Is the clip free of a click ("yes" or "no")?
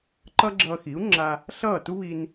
no